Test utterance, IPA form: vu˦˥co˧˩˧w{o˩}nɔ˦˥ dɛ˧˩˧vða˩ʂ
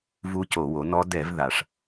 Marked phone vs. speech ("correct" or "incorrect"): incorrect